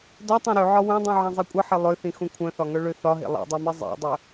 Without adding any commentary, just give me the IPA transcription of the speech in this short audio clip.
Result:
d ɒ tˤ ẽ ɾ ø ʕ ɒ w œ̃ dˤ ũ ʕ ẽ zˤ i kʷʼ ʌ ħ e lˠ ø θ ĩ x ũ kʷʰ œ̃ θ ɒ ŋ œ ɭ ø θ ɒ ɦ ḛ lˠ ḛ dˤ œ m i zˤ ḛ dˤ œ

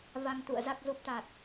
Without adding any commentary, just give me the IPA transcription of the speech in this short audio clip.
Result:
v a˧ ŋ t̪ ṵ˧˨ ə̯ z a˨˩ k̚ z u˨˩ p̚ t̪ a˨˩ t̚

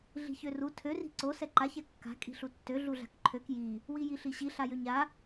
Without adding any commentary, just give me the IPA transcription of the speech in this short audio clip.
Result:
ɮ i̤ ç ø r u tʰ ø r i̤ ǀ o s ɛ ǃ a ç ɛ kː a̤ kʼ i̤ ɬ u tː ø ɮ u ɮ a̤ k ǃʰ ø k j i | w i j i ɬ i ɕ i ɬ a j ø ɲ a

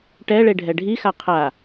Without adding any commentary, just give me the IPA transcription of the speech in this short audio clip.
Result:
ʈ ɛ ɭ e ɖʱ ɛ ɖʱ i x a qʰ a

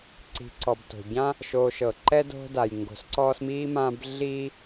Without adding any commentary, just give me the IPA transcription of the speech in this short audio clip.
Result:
ǀ i̤˩ ǀ ɔ˩ b t o̤˩ ɟ ã˥ | ʃ oː˨ ʃ ɤ˩ ǃ ɛ˦ d o̤˦ d a˩ j ŋ ɡ o̤˨ s ǀ ɔː˦ s m iː˥ m ã˦ b ɮ iː˥

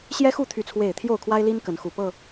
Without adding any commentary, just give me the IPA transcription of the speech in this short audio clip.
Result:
ɕ j ɛ˦ x u˥˨ t̪ʰ y˥˨ t͡sʰ w e˥˨ ɪ̯ t̪ʰ j o˥˨ ʊ̯ kʰ w a˦ ɪ̯ l i˦ n k ə˨˦ n x u˨˩ p ɤ˥˨

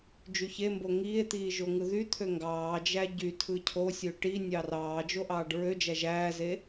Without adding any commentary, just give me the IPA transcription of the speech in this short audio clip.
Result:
d͡ʒ y ç e m b o ŋ iː e̯ t̪ iː ʒ o ŋ ɯ ð y t̪ʰ ø ŋ ɡ ɑː d͡ʒ æ ɟ y tʰ ɯ cʰ o sʲ ø ʈ i nʲ ɑ r ɑː d͡ʒ o ʔ ɑː ɖ ɹ ø d͡ʒ æ ʒ æː z e

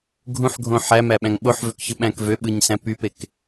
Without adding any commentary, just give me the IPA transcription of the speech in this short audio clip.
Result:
ɡʱ ũ ħ ɡʱ õ ħ æ m æ ɓ æ̃ ŋ ɓ o ħ v ø k ç ɯ ɓ æ̃ k v ø ɓ ɯ ɲ s æ̃ p y p e k

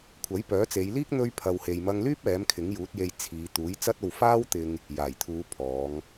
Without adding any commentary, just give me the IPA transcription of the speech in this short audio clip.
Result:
kʷʰ ɐ˨˥ j p œː˨˥ t͡s e˨˧ j l iː˥ k̚ n̪ ɵ˥ ɥ pʰ ɐ˧ w h e˨ j m ɐ˧ ŋ l yː˥ p̚ ɛː˨˥ m kʰ ɪ˨˥ ŋ j uː˨˥ t̚ j e˧ j t͡sʰ iː˨˧ t̪ uː˨˥ j t͡s ɐ˥ t̚ o˧ w f aː˥ w t̪ ɪ˧ ŋ | j aː˨˩ j t̪ʰ uː˨˧ pʰ ɔː˨˧ ŋ

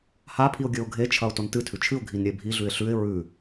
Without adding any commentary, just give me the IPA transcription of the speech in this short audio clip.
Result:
h a pʰ i ʊ̯ ɡʲ ɵ ʊ̯ ɡʱ e t͡ʃʰ ɐ ʊ̯ t o n t ɨ tʰ ʉ t͡ʃʰ ɨ ʊ̯ ɡʱ i n ɾʲ e bʱ i ɮ ʉ ɪ̯ ɬ ʉ ɪ̯ ɹ ʉ

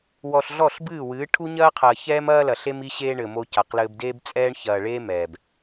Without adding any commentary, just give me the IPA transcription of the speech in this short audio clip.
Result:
w ɔ˨ ɬ ɮ ɔ˦˨ ɬ b ɨː˦˨ w ɨː˨˦ ʈʰ u˦ ɲ ɐː˦ qʰ ɐː˨ ç ɛː˦ m ɐː˦ l ɐ˨ ɬ e˦ m i˦ ɕ eː˦ ɳ ɘ˨ m o˦ c a˨ q l ɘː˦ b d eː˦ b t͡sʼ ɛː˦ ɳ ç ɐː˨ ɭ eː˦ m ɛː˨ b

